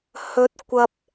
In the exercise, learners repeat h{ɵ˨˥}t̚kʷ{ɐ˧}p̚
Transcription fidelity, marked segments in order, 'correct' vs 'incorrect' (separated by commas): incorrect, incorrect